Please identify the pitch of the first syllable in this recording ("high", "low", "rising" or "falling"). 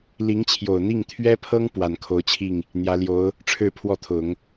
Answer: rising